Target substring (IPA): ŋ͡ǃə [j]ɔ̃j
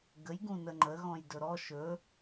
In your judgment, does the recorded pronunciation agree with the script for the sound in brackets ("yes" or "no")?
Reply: no